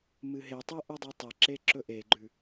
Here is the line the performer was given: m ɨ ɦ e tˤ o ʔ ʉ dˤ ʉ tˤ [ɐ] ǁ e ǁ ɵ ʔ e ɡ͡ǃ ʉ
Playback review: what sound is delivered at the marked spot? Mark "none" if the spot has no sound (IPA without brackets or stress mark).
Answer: ɐ